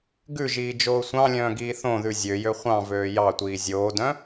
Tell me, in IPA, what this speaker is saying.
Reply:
ɡʉʒiː d͡ʒoːsʷɑ̃lʲœ̃ː ɡiːθõðʉ zʲøjø χʷɑ̃vøː jɑtʷiː zʲoːdœ̃

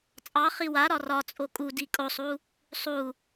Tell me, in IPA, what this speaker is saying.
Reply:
t͡sʼɑ χiwaɾɒ rɒ t͡sʼokʼu dikʼosˤu | sˤu

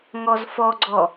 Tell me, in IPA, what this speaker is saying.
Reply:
ŋɔzfɔɡ͡ǀɔ

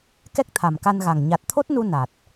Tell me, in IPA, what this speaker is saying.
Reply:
kɛ˦˥k̚t̪ʰa˨˩mka˧nɣa˨˩ŋ ɲa˨˩t̚t̪ʰo˦˥t̚nu˧ na˨˩t̚

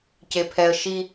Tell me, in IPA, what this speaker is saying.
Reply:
cepʰɛə̯ ʃi

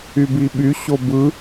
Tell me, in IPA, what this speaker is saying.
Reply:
ybiɓy ɕobɯ

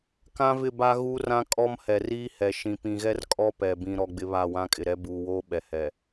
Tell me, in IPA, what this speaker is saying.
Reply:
kã˦vɪ˦˨ba˦ ɣu˦rã˦ kʼɔ˦mhɛ˨ riː˦hɛ˨ ʃĩ˨pĩ˨ɣɛ˦r kʼɔ˦pɛ˨ bĩ˨ɾɔ˨ ɡ͡bɪ˦βa˦˨ wã˦kʼɪ˨ɾɛ˦ buː˨woː˦ɓɛ˨ hɛ˨

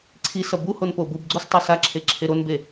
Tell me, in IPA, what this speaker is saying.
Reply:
ǀʰisʌ buhon pobubɡ͡ǀos tˤesaǁʰe ǁʰeɾonbe

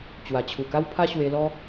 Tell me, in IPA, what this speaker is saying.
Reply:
t͡ɕwa˨˩t͡ɕʰu˨˩ka˦wpʰa˦ ɕwe˧lɔ˦

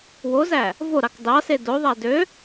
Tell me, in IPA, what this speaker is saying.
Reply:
wozæ | voɾɑk dɑse doðˤæ dø

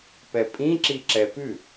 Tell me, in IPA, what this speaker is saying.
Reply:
pɛpʼĩǁi ǁɛpʉ

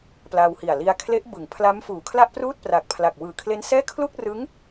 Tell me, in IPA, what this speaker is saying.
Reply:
pla˧whi˨˩a̯ li˧a̯kʰle˦˥ʔbɯ˩˦ŋ pʰla˦˥m fuː˨˩ kʰla˥˩ʔpruː˥˩t̚pra˨˩k̚ pʰla˨˩k̚wɯː˨˩kʰle˦˥nsɛː˥˩ kʰlu˥˩k̚rɯ˦˥ŋ

